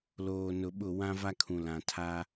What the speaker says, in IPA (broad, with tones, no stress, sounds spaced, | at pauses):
l oː˨ n ʊ˨ ɓ ʊ˦˨ w ã˦ v a˦ kʰ ũ˨ l ã˨ tʰ a˦